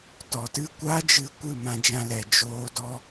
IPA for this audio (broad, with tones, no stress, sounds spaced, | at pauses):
t ɔ˨ t ɨ˦˨ kʷ a˦ d͡ʒ ɨ˧ kʷ ɨ˦˨ m ã˧ d͡ʒ ã˧ l ɛ˨ d͡ʒ oː˧ d ɔ˦